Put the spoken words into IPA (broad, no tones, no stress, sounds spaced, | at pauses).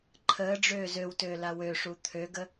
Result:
ǃʰ əː ɖ͡ʐ øː z ø w t øː l a w ø ʂ u t̪ʰ ø ɡ ə